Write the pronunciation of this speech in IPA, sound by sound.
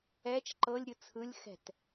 ɛ t͡ʃ ǃ ɤ lʲ ɾʲ ɯ t͡sʰ ɯ lʲ x ɛ̤ t

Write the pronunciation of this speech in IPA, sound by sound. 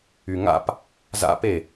y ŋ a̰ p | z a̰ p e

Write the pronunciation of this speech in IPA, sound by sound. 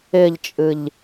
ɪ ʎ t͡ʃʼ ɨ ʎ

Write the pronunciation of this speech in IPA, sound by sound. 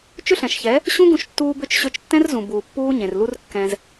t͡ʃ ʏ˦ ɬ ɛ̃˨ ʃ ç ɛ˨˦ | ɕ ũ˦ ɡ ũ˧ ʃ tː uː˧ b ʏ˦˨ t͡ʃ ɕ ø˧ t͡ʃ tː ɛ̃˦ r z ũ˨ b uː˨ pː uː˦ ɲ ẽ˨ r l u˦ r kː ɛ̃˧ z

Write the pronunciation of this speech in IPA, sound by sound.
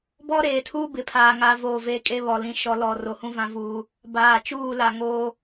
b ɔ˦ ɾ eː˨ tʰ uː˦ b ɪ˨ pʰ aː˨ ŋ a˦ v o˦˨ v e˦ kʼ e˦ β ɔ˨ l ĩ˨ ʃ ɔ˨ l ɔ˨ r o˨ h ũ˦ v ã˦ v uː˦ | b aː˨ t͡ʃ uː˦˨ l a˨ ŋ oː˦

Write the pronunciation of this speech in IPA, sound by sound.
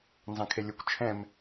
n z ɑ̃ kʰ e lʲ ʊ kʷ t͡ʃʰ ɛ̃ m

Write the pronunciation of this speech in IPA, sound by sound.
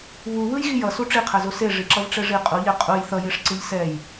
β u β ɯ j ɣ i j ʌ s u ʈ͡ʂ i qʰ ɛ z o s e ʐ i ǁ ʌ v ʈ͡ʂ ɛ ʐ i qʼ u ʎ e qʼ u j θ ʌ j e ʂ ǀ ɯ ʎ s ɛ j

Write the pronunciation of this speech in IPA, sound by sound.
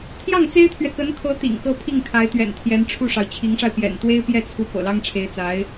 t̪ʰ j ɑ˥˩ ŋ t͡s e˥ ɪ̯ t̪ʰ ɥ ɛ˨ k ə˧˥ n kʰ ɤ˧˥ t̪ ḭ˨˩ ŋ k ɤ˥ pʰ i˥˩ ŋ kʰ a˧˥ ɪ̯ t̪ ɥ ɛ̰˨˩ n t̪ʰ j ɛ˧˥ n ʈ͡ʂʰ u˥˩ ʂ ɑ˩ ʊ̯ t͡ɕʰ i˧˥ ŋ ʂ a˧ ɪ̯ p j ɛ̰˨˩ n t̪ w e˥ ɪ̯ p j ɛ˥˩ t͡sʰ u˧˥ p ɤ̰˨˩ l ɑ˥ ŋ ʈ͡ʂʰ e˧˥ ɪ̯ t͡s a˧˥ ɪ̯

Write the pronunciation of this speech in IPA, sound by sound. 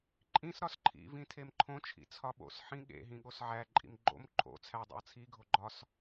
ǃʼ ĩ s ɾ ɒ s ǃʰ ḭ v ĩ tʰ e m ǃʰ õ t͡ʃʰ ḭ t͡sʰ ɒ ɓ o̰ s ħ ĩ ɠ ḛ ɦ ĩ ɠ o s ʕ æ ǃʼ ḭ m ɡ͡ǃ o̰ m ǃʰ o̰ t͡sʰ æ dˤ ḛ ə̯ t͡sʰ i ɡʱ o ɡ͡ǃ ɒ s

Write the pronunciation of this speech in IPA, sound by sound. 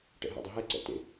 ʈ ɛ̰ ɦ ɛ̰ dˤ ɯ ɦ ɛ ǀ ɛ̰ t ḛ

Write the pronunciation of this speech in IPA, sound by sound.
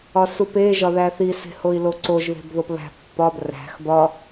ɒ s u p e ʒ ɒ ð æ θ i s e̤ h o i̯ l o ǀ o ʒ ð e̤ b ð o p β æ̤ pː ɒ b r æ̤ x b ɒ

